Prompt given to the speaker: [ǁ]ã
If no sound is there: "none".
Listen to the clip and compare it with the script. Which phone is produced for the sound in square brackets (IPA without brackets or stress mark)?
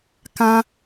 k